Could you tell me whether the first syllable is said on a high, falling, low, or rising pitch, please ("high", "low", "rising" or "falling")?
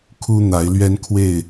high